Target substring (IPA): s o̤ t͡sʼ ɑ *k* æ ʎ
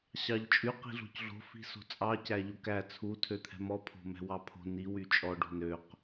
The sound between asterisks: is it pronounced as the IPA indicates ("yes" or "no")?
no